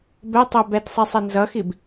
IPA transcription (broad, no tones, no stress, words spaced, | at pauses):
bɛtˤɛ bɛtsˤisˤi nzʌxib